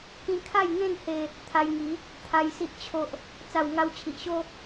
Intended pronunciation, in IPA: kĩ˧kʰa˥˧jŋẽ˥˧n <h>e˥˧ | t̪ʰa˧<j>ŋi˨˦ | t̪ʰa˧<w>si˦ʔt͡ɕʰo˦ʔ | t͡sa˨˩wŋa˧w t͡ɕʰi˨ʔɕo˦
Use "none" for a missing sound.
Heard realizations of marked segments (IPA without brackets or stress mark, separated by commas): h, j, j